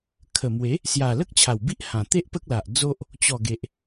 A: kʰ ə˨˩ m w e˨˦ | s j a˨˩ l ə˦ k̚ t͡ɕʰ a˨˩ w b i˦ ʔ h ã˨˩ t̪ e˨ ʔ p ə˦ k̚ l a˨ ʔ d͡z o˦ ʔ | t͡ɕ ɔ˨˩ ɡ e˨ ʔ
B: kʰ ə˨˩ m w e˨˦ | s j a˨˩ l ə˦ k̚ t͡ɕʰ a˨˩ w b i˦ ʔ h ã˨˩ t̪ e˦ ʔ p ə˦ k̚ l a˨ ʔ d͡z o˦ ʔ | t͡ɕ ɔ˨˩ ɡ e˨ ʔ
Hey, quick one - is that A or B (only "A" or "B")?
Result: B